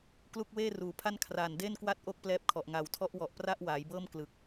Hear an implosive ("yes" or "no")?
no